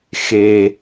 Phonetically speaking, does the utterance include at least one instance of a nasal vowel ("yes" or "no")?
no